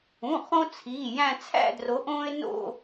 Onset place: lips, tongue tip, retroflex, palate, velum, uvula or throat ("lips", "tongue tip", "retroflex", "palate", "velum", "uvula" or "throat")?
uvula